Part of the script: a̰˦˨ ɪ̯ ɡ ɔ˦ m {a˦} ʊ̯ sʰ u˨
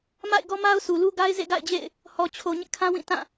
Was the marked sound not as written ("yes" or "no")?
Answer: no